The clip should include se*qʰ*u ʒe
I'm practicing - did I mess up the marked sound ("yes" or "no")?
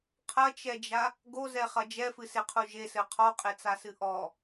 no